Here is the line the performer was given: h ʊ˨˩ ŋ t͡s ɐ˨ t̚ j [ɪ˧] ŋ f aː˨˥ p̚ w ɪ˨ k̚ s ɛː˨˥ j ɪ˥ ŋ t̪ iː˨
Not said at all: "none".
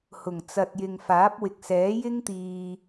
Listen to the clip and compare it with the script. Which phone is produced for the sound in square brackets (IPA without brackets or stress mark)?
ɪ˨